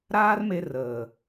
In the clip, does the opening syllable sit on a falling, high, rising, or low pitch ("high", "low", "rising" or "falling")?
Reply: high